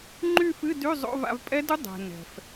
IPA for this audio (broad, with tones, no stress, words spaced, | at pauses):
ŋ͡ǃy˥˧fɨ˧˥˧dy˧˥˧ zˤo̰˧˥˧va̰˧v pʼɛ˦˥du˦˥ dˤɛ̤˩ nɛ̤˩f